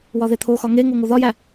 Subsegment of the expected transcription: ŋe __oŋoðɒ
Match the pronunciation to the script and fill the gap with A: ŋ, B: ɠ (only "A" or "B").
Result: A